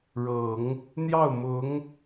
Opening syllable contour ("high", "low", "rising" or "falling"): low